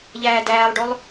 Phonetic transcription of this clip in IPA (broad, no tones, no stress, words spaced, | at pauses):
ʎæːdæːlˠɖolˠ